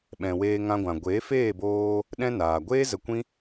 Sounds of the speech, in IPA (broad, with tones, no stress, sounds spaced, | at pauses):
ɓ ɛ̃˨ w eː˧ ŋ ã˧ ɡʷ ã˨ ɡʷ eː˨˦ f eː˦˨ b oː˧ | ɗ ɛ̃˦ n aː˨ ɡʷ eː˦ z ə˧ kʷ ĩ˦